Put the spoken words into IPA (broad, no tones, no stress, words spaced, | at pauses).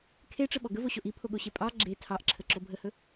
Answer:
kʰeʈ͡ʂəɓɔ ɡəvoɕoʔ ipʰoɠoɕe pʼɑ ɡ͡ǁe tʰɑʔǁʰəǁo bʱəhɵ